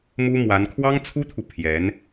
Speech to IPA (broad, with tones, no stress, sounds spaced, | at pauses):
m u˥ m w a˧˥ n kʰ w ɑ˥ ŋ t͡sʰ u˥ t̪ʰ u˨ pʰ j ɛ˧˥ n